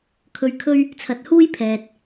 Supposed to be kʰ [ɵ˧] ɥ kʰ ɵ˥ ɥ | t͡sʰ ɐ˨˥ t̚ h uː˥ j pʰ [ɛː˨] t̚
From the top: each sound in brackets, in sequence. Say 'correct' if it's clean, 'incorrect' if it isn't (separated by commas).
correct, correct